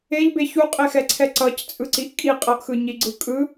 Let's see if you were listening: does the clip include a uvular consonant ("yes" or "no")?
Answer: yes